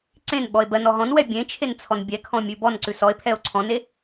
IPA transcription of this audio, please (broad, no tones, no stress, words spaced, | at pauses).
ǀẽnɓɔe̯ bɜn ɔɦɔ̃nwɛ bʲẽ t͡ʃʰent͡sʰɔnbʲɛkʰɔ̃ mʲʉbɔnǀʉ sɔe̯pʰɛo̯ ǀʰɔ̃ne